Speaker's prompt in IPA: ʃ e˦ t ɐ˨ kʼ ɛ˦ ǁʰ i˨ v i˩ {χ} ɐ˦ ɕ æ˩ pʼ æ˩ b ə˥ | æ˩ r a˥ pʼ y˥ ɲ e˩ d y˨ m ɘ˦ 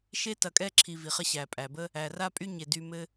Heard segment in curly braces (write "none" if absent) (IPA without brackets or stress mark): χ